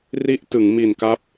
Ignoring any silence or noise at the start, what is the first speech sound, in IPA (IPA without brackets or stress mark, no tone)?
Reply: r